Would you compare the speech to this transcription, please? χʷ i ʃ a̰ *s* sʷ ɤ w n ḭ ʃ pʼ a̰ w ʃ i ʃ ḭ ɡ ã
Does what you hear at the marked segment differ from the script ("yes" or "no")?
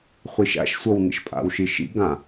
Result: yes